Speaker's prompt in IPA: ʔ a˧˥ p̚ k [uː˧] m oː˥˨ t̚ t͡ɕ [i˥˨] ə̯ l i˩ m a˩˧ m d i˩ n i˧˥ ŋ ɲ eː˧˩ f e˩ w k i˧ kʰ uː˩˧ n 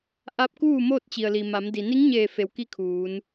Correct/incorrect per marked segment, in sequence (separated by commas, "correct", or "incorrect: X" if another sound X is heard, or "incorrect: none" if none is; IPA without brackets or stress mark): incorrect: uː˥˨, incorrect: i˩